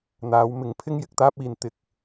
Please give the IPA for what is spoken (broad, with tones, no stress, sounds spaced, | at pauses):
n̪ aː˨˥ w m ɪ˨˧ ŋ pʰ ɪ˥ ŋ j ɪ˨ k̚ t̪ aː˥ p̚ iː˨ n t̪ ɪ˧ k̚